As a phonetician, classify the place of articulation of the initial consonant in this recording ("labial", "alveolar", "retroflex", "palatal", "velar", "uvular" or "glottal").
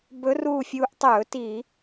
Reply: labial